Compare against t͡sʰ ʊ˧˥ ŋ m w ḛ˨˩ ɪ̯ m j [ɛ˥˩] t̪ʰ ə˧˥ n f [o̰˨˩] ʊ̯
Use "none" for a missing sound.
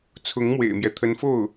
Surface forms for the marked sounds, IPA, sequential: ɛ˦, o˥˩

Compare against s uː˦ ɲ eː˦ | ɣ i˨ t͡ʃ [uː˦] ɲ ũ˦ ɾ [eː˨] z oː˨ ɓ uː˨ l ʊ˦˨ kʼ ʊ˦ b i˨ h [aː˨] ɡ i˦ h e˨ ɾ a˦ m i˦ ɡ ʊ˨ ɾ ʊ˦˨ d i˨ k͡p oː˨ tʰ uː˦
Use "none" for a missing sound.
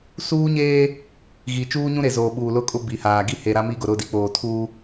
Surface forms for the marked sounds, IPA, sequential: uː˦, e˨, aː˨

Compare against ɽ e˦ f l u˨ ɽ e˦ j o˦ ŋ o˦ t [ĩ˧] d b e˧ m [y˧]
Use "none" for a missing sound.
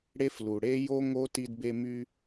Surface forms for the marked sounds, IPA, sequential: i˧, y˧

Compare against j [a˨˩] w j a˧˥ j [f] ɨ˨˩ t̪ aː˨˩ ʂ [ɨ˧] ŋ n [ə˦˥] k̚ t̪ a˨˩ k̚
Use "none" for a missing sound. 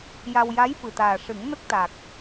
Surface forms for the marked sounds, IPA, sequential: a˧, f, ɨ˨˩˦, ə˦˥

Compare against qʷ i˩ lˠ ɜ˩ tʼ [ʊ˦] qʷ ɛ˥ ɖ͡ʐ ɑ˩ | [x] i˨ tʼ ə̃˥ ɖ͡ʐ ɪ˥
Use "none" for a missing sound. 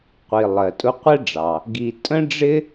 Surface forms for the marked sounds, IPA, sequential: ʊ˦, ɡ

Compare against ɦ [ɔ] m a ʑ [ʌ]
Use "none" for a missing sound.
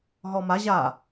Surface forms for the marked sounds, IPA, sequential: ɔ, a

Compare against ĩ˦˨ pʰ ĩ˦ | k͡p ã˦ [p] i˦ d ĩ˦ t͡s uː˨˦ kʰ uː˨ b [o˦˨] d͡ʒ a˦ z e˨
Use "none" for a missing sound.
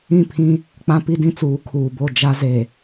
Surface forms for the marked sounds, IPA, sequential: p, o˦˨

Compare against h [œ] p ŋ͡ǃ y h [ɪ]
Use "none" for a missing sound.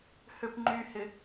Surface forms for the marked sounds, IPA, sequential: ø, ɪ

